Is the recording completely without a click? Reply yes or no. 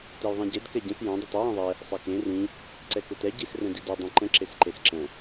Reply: no